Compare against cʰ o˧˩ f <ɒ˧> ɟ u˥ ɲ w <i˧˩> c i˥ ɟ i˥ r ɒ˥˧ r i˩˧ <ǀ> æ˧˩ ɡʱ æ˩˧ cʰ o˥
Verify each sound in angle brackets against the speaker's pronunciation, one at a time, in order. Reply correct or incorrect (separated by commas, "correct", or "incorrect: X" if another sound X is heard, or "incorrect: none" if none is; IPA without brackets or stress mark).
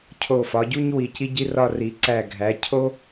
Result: incorrect: ɒ˩˧, correct, correct